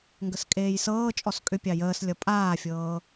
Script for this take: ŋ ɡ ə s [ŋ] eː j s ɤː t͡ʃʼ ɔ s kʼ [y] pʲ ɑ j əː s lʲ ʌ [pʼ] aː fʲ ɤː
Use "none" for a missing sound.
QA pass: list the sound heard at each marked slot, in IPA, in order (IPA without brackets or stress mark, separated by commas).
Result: kʼ, ʏ, pʼ